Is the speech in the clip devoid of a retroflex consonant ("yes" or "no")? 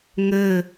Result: yes